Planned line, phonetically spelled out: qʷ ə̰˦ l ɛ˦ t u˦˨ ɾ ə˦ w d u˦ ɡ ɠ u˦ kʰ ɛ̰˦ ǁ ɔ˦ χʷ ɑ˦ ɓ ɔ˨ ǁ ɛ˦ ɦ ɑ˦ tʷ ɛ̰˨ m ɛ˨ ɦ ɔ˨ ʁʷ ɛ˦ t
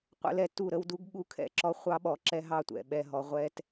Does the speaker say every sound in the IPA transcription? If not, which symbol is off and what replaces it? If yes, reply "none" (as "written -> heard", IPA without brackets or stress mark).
m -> ɓ